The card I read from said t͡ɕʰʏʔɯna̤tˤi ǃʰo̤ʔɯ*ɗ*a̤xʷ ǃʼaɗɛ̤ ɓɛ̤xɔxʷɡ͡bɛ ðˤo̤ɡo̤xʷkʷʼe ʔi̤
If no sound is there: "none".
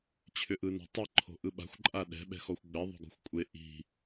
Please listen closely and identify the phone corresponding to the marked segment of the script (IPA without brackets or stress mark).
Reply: ɓ